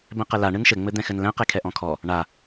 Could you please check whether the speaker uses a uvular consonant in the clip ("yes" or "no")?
yes